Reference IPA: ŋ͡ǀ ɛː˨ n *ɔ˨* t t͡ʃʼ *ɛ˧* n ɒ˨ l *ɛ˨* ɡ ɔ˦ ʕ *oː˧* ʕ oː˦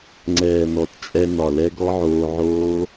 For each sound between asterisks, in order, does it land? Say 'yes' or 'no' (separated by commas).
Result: yes, yes, no, yes